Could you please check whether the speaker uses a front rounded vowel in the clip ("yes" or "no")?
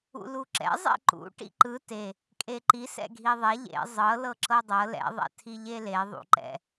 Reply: no